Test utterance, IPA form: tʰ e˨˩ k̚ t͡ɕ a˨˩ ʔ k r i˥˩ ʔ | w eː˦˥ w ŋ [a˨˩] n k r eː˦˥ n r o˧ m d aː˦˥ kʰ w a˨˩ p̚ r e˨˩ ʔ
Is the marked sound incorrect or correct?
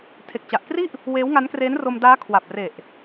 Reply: incorrect